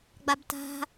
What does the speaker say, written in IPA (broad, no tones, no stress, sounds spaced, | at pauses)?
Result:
ɡ͡b a b t a̤